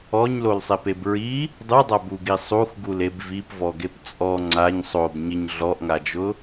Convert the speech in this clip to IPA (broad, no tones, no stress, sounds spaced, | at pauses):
ɔ ɲ l o l sˤ e p e b ɹ i | dˤ u dˤ a b u ɡ i sˤ u x ɡ u l e b v i p v ɔ ɡ e p t͡sʼ ɔ ŋ͡ǀ a ɲ sˤ o b ɲ ɪ ɲ ɮ ɔ ʔ ŋ a d͡ʒ ʊ